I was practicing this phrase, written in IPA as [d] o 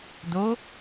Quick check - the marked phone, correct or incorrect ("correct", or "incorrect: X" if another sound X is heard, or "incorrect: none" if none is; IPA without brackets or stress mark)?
correct